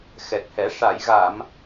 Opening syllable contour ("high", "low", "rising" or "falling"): low